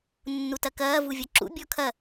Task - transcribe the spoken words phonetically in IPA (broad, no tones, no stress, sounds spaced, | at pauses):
nː u t ɐ k ɐː v u vʲ ɔ ǁ ṵ bʲ ɔ kʰ ɐ